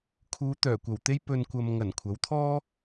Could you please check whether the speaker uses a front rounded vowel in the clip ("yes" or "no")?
yes